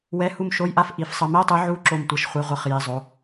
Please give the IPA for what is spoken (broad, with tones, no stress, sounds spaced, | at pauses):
w ɛ˧˥˧ h u˦˨ m ʃ o˧˥˧ j ʔ a˦˨ f ʔ i˨˥ f sˤ ɤ˨˥ m ɛ˧˥˧ tˤ ɯ˨˥ ʕ u˧˥˧ ǁ o˦˨ m tʷ ɤ˨˥ ʃ χʷ ɛ˧˥˧ ʁʷ ɤ˦˨ χ j i˧˥˧ zˤ o˧˥˧